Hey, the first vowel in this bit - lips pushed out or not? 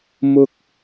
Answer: yes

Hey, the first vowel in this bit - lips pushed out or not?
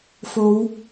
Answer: yes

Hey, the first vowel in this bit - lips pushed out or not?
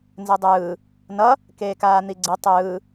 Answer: no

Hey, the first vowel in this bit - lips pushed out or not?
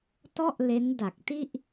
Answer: yes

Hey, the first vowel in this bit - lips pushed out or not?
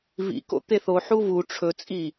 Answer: no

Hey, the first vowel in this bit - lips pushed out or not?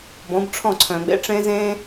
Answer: yes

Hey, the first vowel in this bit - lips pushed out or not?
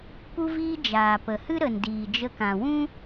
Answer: yes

